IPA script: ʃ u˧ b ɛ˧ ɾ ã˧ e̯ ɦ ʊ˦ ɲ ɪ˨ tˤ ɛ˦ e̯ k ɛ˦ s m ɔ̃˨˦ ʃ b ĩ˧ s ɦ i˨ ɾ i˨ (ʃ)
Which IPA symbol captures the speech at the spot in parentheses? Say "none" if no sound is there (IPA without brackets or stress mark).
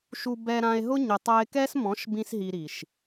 ʃ